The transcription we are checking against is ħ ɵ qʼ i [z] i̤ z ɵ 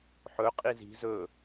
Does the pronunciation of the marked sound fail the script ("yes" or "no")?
no